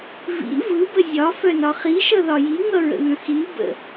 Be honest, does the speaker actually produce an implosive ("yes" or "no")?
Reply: no